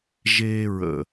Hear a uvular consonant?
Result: no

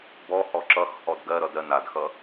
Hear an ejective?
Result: no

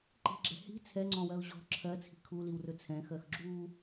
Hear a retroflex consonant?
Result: no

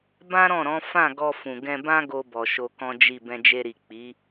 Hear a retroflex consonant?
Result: no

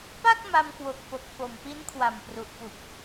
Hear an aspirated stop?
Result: yes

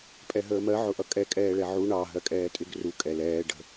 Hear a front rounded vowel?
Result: no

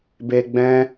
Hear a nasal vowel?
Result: yes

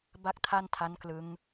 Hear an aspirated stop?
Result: yes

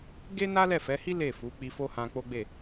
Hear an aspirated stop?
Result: no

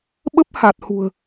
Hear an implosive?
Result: yes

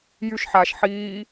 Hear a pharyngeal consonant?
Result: yes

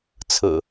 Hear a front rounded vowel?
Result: no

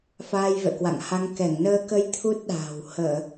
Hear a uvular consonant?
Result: no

